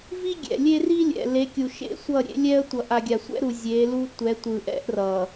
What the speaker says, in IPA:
v i˦ ɡʲ ɛ̰˨ lʲ e˦ r i˦ lʲ ɛ̰˨ l e˨˦ kʲ u˨ ʃ ḛ˦ sʷ ʌ˦˨ ɾʲ ḛ˦ lʲ ɛ˦ ə̯ tʷ ʌ˨ ʔ a˨ ɡʲ a˨ sʷ ɛ̰˦ ɾ u˨ zʲ e˨˦ l u˦ tʷ ɛ˨˦ tʷ ɯ˨ ʔ ɛ̰˦ ʔ r ʌ˨

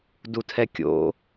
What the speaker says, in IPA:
d u tʰ ɛ kʲ o̰

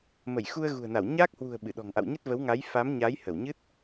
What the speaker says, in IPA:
m ə˧˩ j x u˧ ə̯ ɣ ṳ˨˩ ə̯ n a˧˩ w ɲ aː˦˥ k̚ h w ṳ˨˩ ə̯ ɓ ɨ˧˩ ɗ ɔ̤˨˩ ŋ ʔ a̰˧˨ w ɲ ə˦˥ t̚ v ə˨˦ w ŋ a˨˦ j f a˨˦ m ɲ a˨˦ j h ə˧˩ w ɲ ɨ˦˥ t̚

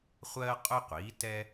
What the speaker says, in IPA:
χʷ ɜː˥ qʼ ʊ˥ qʷ iː˩˥ t ɛ˥

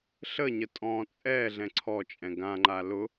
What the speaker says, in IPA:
ɬ ə ɲ ə tʼ ɔ̃ t͡sʼ ɛ ɮ ɛ̃ ǀʰ ɔ t͡ʃʼ ɛ̃ ɡ ã ŋ͡ǃ a l ʊ

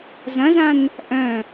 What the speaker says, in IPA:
z ɐ̃ z ã n | ʔ œ̃

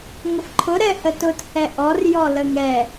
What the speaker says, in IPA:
ŋ ə f ǃʰ ʊ ɾ ɛ h ə t ʊ t h ɛ ʔ ɔ r j ɔ l ə ŋ ɛ

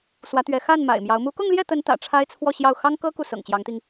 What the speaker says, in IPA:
s w ä˧˥ t̪ ɥ ɛ˧˥ x a˥˩ n m a̰˨˩ ɪ̯ m j ɑ˧˥ ʊ̯ m u˧˥ k ʊ˥˧ ŋ l j ɛ˥˩ t̪ ə˧˥ n t̪ ä̰˨˩ ʈ͡ʂʰ a˥ ɪ̯ t͡sʰ w ɔ˥˧ ɕ j ɑ˥˩ ʊ̯ x ɑ˥ ŋ k ɤ˥ k u˨ s ɤ̰˨˩ ŋ t͡ɕ j ɑ˧˥ ŋ t̪ i˧ ŋ

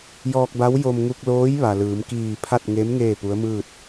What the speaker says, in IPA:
j ɔː˧ k̚ b a˧˥ w j o˧ m ŋ u˧ k̚ l oː˧˥ j ʋ a˩ l ɯː˩˧ m k iː˧˩ pʰ a˥˨ t̚ ŋ e˧˥ m ŋ eː˥˨ p u˧˥ ə̯ m ɯː˥˨ t̚

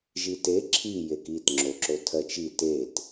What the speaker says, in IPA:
ʒ i t e ǁʰ i j e k i t ŋ͡ǁ o ǁ o tʰ ɜ t͡ʃ i t e t

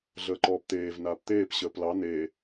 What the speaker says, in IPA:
ɮ əː ǃ ɔː p t̪ eː v n aː p t̪ eː p ɕ əː p l ɑ n e

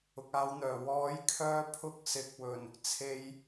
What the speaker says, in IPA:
ʊ˨ k̚ aː˧ w n̪ œː˨˩ w ɔː˨˥ j kʰ œː˧ pʰ ʊ˥ k̚ s ɪ˨ k̚ w ɵ˨˩ n | t͡sʰ e˨ j

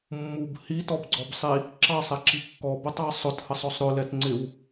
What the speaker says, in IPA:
mː u b h i t ɔ b ɡ͡ǀ ɔ b sˤ i | ǁ ɑ sˤ ɛ ǁ i kː ɔ b ʊ tˤ ɑ sˤ ʊ t h ə sˤ ɔ sˤ ɾ ʊ l ɛ t ŋ͡ǀ ɪ w

